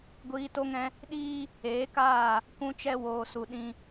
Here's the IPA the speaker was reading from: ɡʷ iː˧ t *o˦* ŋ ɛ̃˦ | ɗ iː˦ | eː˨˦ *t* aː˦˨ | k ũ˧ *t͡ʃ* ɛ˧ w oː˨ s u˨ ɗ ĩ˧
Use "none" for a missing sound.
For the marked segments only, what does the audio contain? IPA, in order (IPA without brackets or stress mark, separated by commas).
o˦, k, t͡ʃ